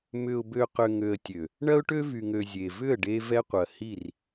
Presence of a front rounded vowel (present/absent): present